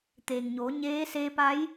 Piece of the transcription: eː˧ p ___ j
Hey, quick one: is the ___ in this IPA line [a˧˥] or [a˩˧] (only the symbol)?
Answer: a˧˥